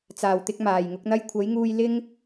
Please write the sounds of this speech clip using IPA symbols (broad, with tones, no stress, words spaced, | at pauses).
t͡saː˨˩wt̪ɪ˧k̚ maː˨˩jŋʊ˨˥k̚n̪ɐ˥j kʷʰɐ˨˥jŋuː˧j lɪ˥ŋ